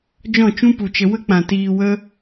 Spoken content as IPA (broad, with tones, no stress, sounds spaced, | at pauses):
d͡ʒ ɔ̃˦˨ t͡ʃ ũ˦ p u˨ t͡ʃ ə˧ w ə˦ k͡p ã˨ t iː˧ w ə˦